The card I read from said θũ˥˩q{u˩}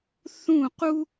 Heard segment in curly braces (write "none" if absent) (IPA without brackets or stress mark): u˥